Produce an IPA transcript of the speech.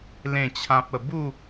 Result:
l ẽ˥˧ t͡ɕʰ ã˦ p̚ ə˧ b u˥˧

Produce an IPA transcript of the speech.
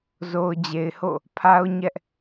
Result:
z o˨ ʊ̯ d͡ʑ e˨ ɪ̯ h o̰˦˨ | pʰ a˦ ʊ̯ ɲ ɛ˦ ʔ

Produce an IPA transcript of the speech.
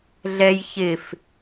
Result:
ɮ ɛ j ç ɪ f

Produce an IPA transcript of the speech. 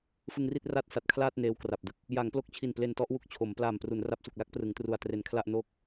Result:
f ɯ˧ ŋ r i˥˩ t̚ r a˥˩ t̚ s a˨˩ t̚ kʰ l aː˥˩ t̚ n eː˦˥ w k r a˨˩ p̚ d ɯ˦˥ k̚ | j a˩˦ ŋ p l o˥˩ k̚ t͡ɕʰ i˨˩ n p l e˧ n t ɔ˦˥ ʔ w u˨˩ k̚ t͡ɕʰ o˩˦ m p l aː˨˩ m p r u˩˦ n r a˦˥ p̚ s u˨˩ k̚ l a˥˩ k̚ p r ɯ˩˦ ŋ t r u˨˩ a̯ t r e˨˩ n kʰ l a˥˩ ʔ n oː˥˩ k̚

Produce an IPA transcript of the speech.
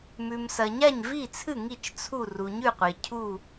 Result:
m ʉ˩ m s ɐ˩ ɲ a˥˩ ɲ v i˥˩ t͡sʰ ɨ˥˩ ŋ i˥˩ t͡ʃ t͡sʰ u˥˩ r u˩ ɲ ʉ˥˩ qʷ e˩ cʰ u˥˩

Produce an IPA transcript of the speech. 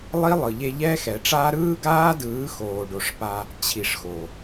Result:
lˠ i˦ lˠ ɯ˨ ʎ e˧ ʎ ɛ˦ x ɛ˨ ʈ͡ʂ aː˦ ɾ ɯː˦ ɡ aː˦ d ɯː˨˦ x oː˨ ɖ o˨ ʂ p a˧ | t͡ɕʰ i˨ ʂ x o˨

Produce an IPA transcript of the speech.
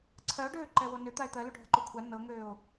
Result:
ǀʰ ɜ o̯ ɖ øː ǃ ɛ w o n ø t̪ a e̯ t̪ ɜ l u ɖʱ ə ǃ o kʷʰ a n ɤ ŋ øː o̯

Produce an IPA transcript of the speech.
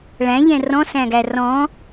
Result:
ɭ æ̃ ʎ ɛ̃ r ɔ̃ s æ̃ ɡ æ r ɔ̃

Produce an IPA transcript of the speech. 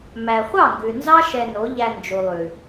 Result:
m æ˨ χʷ ɑ˦˨ ŋ ɡ ʉ˨ n z ɑ˦ ʃ ɛ˧ n o˨˦ ʎ æ˧ n d͡ʒ u˨ lˠ ʉ˨

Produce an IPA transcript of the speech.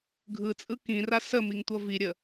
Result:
ɡʱ ɯ t͡sʼ ɯ k ĩ r a s ə m i ŋ tʷ ʌ v i ɾʲ ə

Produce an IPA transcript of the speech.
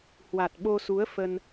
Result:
h w a˨˩ t̚ ɓ o˧ s u˨˦ ə̯ f ə˧ n

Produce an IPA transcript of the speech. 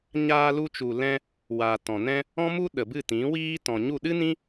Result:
ɲ aː˧ l u˧ t͡ʃ u˨ l ɛ̃˧ | w aː˨ t ɔ̃˨ n ɛ̃˦ | ɔ̃˦ m u˦ ɗ ə˨ b ɨ˦˨ t ĩ˨˦ w iː˦ t ɔ̃˨ ɲ u˦˨ ɗ ɨ˦ n ĩ˦

